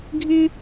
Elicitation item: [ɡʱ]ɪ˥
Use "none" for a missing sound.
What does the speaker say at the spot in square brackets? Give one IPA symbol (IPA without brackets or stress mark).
ɡʱ